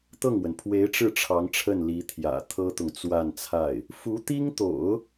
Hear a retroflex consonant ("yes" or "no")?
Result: yes